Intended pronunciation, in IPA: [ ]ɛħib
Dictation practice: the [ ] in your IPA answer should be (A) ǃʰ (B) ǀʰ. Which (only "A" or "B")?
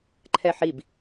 A